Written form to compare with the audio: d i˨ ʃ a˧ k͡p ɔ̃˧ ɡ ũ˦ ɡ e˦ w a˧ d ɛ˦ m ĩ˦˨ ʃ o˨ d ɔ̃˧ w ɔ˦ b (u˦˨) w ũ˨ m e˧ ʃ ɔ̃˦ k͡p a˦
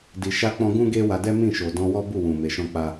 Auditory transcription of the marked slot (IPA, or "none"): u˦˨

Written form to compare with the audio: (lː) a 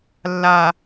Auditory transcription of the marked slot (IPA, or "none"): lː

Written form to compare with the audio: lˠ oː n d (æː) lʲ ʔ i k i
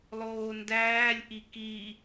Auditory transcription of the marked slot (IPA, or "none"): æː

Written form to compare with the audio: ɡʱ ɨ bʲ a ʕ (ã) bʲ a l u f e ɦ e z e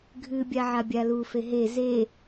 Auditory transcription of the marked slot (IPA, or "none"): a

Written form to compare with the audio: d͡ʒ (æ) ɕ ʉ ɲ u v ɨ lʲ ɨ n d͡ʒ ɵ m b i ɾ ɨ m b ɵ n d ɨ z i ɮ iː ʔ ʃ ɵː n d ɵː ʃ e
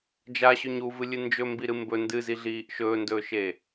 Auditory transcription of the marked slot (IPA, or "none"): a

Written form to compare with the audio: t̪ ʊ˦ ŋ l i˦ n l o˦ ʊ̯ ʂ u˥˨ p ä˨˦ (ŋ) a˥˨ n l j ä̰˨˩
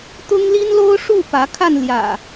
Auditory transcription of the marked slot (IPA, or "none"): kʰ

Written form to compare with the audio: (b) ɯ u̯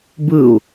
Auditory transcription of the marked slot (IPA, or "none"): b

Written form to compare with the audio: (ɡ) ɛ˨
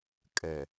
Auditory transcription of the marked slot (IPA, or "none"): kʼ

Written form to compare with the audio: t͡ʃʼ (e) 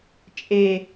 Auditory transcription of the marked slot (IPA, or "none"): e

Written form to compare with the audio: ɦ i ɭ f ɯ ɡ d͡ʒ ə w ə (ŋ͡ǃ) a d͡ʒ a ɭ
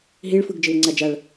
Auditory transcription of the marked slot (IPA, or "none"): ŋ͡ǀ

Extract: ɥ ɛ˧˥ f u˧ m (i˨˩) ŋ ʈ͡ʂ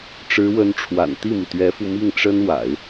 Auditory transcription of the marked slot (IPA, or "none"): i˥˩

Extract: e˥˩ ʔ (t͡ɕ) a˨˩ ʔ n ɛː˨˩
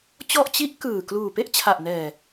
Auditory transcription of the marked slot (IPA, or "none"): t͡ɕʰ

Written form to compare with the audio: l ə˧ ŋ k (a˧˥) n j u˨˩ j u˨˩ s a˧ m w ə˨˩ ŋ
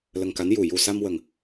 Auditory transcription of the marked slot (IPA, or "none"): a˧˥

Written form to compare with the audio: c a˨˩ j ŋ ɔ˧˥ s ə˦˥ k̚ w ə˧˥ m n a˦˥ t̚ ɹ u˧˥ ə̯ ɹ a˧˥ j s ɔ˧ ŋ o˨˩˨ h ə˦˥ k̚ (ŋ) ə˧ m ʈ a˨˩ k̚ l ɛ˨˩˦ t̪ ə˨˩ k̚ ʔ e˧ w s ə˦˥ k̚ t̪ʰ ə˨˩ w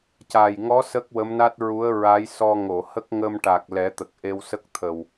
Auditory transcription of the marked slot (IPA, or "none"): ŋ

